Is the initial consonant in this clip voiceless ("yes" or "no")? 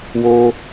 no